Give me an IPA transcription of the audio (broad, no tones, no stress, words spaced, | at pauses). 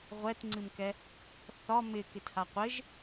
ʁʷɛtŋ͡ǀɨmkɛ | θɒ mɪ kɪthaqʷɪʒ